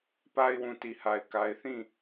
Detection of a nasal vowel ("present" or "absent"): present